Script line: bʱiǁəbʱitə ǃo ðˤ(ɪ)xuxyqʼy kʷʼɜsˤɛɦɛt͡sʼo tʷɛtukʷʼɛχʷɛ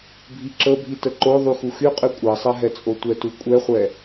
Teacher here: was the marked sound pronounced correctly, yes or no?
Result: no